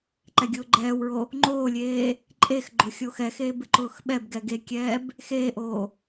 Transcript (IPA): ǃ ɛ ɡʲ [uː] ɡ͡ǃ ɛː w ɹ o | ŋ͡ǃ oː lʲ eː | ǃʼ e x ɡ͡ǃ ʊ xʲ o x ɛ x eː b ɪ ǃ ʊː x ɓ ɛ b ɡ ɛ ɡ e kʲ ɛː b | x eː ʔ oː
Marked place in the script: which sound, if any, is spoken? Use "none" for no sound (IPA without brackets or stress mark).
ʊː